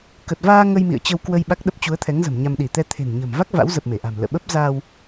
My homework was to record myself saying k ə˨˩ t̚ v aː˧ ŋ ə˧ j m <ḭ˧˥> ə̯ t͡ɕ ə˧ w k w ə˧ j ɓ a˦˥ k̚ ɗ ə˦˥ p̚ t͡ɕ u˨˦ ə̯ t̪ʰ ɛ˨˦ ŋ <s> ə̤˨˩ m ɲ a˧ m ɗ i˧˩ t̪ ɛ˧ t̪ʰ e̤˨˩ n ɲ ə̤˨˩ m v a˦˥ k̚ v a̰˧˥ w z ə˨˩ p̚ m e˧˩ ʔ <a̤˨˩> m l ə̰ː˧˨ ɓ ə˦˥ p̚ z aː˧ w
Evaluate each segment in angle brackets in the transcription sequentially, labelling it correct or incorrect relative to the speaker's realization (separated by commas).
incorrect, incorrect, correct